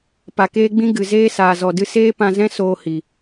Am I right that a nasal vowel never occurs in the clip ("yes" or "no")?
no